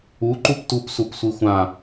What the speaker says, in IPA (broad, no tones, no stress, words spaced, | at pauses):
uǃup tupsupsʷi xʷã